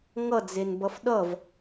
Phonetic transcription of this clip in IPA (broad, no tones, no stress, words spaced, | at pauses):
ŋʌd͡zenbʌf ɗʌv